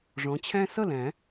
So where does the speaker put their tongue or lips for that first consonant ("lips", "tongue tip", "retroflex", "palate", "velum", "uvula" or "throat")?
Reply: retroflex